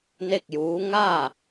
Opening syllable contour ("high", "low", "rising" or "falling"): falling